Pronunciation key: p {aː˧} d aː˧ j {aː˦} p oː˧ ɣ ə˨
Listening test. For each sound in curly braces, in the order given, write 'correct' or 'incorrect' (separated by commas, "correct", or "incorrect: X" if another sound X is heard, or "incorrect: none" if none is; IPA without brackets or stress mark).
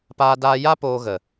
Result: correct, incorrect: a˦